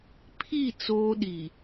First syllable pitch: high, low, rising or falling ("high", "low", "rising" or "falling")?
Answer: falling